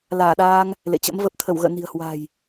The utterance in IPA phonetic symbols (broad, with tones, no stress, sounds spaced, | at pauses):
l aː˧˩ ɗ aː˧ ŋ | l ḛ˧˨ t͡ɕ ə̰˧˥ m v ə˨˩ p̚ t̪ʰ ə˧˩ w ɣ ə̰ː˧˨ n i̤˨˩ ə̯ h w a̤˨˩ j